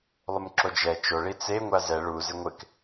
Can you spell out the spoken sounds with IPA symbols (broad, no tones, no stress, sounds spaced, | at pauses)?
lˠ ʊ m ǁ o d͡ʒ ɛ t͡ʃ o ɭ i t͡s e ŋʷ a z ɛ ɭ u z ɪ ŋʷ ɪ k